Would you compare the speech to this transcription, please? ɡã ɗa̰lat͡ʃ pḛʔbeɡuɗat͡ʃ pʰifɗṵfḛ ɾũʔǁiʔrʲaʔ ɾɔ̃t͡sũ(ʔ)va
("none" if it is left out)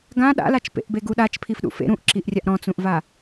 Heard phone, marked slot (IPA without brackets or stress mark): ʔ